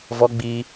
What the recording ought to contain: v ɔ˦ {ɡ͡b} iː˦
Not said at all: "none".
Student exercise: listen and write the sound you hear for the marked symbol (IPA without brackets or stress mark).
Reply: ɡ͡b